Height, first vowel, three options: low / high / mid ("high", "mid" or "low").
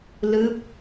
high